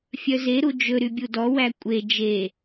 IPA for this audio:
fʲ œ z e ɾ u d͡ʒ ɵ ɾ y bʲ u d ɔ w æ kʷʼ e d͡ʒ e

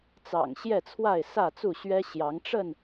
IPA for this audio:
t͡s ɑ̰˨˩ ŋ ɕ j ɛ˥˨ t͡sʰ w a˥˨ ɪ̯ s ä˥˨ t͡s u˥˨ ɕ ɥ ɛ˦ ɕ j ɑ˨˦ ŋ ʈ͡ʂ ə˥˨ n

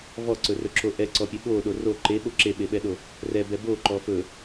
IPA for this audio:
v ɔ ǀ ɵ r ɵ ǁ o ʔ ɛ ǀ ɔ pʲ ɛ ɓ o ɗ o r o ǃ e ɓ o ǁ e ɓ e ɓ ɛ ɗ o | r ɛ b ɛ b o ǃ ɔ f ɵ

